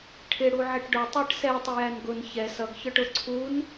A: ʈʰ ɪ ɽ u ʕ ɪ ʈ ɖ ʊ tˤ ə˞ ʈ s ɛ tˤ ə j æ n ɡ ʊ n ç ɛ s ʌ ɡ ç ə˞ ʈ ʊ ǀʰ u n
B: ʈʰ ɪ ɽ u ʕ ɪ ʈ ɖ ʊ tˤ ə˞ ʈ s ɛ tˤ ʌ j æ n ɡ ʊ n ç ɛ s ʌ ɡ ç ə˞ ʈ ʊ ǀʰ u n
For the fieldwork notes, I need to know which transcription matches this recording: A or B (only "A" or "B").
A